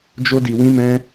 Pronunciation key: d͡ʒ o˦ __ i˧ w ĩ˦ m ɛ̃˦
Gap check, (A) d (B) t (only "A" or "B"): A